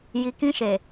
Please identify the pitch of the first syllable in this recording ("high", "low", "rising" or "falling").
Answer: low